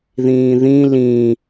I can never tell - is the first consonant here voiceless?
no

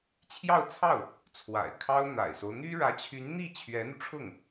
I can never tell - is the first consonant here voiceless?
yes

